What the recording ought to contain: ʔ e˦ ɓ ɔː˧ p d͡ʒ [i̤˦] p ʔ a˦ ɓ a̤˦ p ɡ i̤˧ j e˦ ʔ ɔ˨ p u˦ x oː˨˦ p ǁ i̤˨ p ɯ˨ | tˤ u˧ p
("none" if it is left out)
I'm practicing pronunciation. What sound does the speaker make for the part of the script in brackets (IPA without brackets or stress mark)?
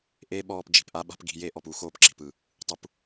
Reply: i̤˨